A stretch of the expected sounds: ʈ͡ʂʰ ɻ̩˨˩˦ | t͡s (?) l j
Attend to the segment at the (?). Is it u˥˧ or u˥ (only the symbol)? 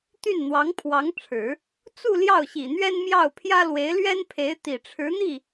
u˥˧